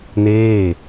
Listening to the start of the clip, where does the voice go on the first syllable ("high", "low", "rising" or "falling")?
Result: falling